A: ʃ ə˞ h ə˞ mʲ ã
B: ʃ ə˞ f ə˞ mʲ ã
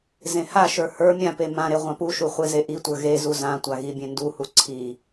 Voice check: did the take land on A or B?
A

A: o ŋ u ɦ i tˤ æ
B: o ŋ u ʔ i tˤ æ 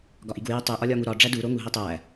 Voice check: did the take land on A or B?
A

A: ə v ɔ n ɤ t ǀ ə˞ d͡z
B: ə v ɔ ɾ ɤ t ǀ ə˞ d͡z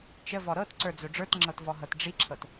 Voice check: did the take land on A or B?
B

